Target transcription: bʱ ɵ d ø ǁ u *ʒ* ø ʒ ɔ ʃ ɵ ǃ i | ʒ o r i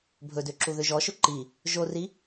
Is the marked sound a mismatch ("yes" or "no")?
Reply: yes